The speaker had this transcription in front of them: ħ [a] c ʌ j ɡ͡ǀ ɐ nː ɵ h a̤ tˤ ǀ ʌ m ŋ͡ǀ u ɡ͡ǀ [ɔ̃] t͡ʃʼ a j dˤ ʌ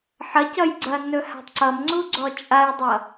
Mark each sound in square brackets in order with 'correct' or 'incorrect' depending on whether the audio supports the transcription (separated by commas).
incorrect, incorrect